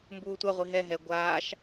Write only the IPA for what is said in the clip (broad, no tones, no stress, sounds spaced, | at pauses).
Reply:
m b uː tʷ a ʁʷ i ɦ ɛ ɦ ɛ ɡʷ aː ʃ